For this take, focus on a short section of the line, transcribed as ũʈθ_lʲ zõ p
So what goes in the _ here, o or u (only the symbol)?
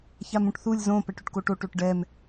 u